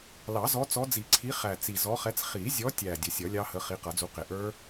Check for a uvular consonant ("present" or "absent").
present